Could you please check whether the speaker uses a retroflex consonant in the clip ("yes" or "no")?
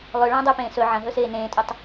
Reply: yes